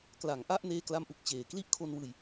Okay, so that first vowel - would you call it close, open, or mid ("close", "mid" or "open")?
open